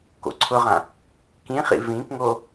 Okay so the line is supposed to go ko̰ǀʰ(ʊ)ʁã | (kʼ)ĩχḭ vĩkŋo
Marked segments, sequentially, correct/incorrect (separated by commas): correct, incorrect